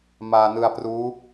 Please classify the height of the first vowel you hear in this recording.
low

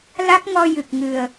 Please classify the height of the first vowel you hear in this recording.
low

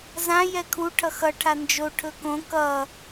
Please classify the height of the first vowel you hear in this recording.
low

